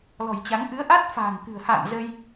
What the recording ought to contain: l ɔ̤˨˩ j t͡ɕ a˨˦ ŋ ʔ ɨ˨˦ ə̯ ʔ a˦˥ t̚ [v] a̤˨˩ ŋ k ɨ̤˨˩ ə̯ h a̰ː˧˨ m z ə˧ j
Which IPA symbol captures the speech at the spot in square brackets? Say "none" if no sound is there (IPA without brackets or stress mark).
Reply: f